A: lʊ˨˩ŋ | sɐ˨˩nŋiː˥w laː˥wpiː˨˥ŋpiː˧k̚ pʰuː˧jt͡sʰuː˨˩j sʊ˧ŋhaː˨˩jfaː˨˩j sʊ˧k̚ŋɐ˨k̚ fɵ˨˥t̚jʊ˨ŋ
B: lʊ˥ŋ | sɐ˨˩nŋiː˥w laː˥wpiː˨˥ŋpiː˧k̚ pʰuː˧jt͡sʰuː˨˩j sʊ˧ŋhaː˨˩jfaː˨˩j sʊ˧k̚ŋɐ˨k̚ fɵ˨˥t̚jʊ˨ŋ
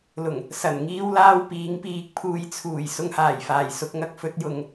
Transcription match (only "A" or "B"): A